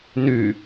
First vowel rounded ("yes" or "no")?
yes